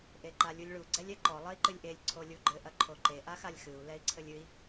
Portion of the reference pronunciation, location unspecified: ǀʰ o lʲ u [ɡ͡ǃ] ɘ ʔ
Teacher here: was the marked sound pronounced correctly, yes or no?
yes